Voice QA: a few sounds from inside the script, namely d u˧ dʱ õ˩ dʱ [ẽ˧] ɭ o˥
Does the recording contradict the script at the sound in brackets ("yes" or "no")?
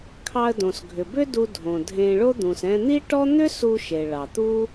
no